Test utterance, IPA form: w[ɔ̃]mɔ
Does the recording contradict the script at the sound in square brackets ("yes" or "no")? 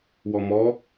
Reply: yes